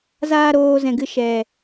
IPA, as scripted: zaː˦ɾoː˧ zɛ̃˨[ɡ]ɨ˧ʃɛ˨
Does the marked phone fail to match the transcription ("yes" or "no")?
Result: no